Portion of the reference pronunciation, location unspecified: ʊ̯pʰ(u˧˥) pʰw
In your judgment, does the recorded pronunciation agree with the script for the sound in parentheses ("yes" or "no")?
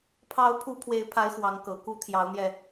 yes